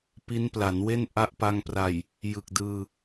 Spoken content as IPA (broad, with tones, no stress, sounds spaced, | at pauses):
p i˦˥ n p l a˩˦ n w e˥˩ n ʔ a˦˥ ʔ p a˧ ŋ p r a˨˩ j | j ɯ˨˩ k̚ d ɯː˧